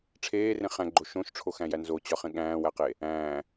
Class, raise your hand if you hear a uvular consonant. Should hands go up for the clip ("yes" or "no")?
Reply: yes